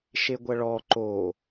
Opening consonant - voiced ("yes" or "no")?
no